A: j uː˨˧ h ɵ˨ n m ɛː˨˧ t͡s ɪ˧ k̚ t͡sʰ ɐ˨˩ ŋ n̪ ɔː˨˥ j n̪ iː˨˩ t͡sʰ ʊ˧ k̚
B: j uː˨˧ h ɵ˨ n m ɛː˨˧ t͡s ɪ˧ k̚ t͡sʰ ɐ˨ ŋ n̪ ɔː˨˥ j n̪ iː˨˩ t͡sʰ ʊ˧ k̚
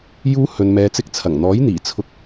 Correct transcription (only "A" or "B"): A